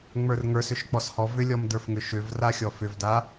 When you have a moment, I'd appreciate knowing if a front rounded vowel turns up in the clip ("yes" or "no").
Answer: yes